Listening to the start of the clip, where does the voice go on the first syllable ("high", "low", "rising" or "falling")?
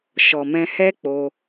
low